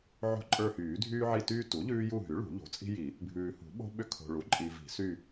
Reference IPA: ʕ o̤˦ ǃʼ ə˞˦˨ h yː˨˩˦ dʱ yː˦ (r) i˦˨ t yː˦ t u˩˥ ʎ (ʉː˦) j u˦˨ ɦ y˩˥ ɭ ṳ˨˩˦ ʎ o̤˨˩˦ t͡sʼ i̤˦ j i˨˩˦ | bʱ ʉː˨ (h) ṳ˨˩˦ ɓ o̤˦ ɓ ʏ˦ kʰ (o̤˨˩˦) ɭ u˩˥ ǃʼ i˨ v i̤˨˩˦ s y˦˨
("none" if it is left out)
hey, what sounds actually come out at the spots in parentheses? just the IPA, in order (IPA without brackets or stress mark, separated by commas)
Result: ʕ, ʉː˦, h, o̤˨